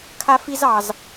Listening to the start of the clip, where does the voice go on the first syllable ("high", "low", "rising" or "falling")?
high